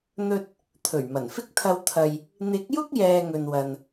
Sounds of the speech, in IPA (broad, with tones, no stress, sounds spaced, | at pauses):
n̪ ɵ˧ t̚ | t̪ʰ ɵ˨˩ ɥ m ɐ˨˩ n f ɪ˥ k̚ t̪ʰ ɐ˧ w t̪ʰ ɐ˨ j | n̪ ɪ˨˥ k̚ j ʊ˥ k̚ j ɛː˧ ŋ ɵ˨ n w ɐ˨ n